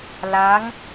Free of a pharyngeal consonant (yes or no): yes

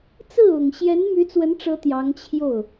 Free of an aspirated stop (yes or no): no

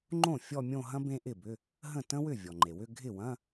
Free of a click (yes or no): no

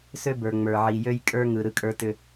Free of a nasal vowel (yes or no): yes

